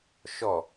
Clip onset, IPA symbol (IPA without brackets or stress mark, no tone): ʃ